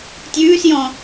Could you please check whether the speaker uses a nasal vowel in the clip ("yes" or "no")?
yes